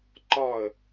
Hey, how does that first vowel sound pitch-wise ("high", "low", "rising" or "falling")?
falling